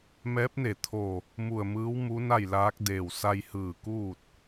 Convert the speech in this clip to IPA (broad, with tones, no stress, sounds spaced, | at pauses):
m ɛː˧˥ p̚ n e˧˩ t̪ʰ o˧˩ | m u˧˩ ə̯ m ɯː˧˥ w m u˧˥ n a˥˨ j l aː˧˥ k̚ d eː˧˩ w s a˧ j h ɯː˧˩ k uː˥˨ t̚